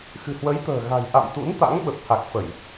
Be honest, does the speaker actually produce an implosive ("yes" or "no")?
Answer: yes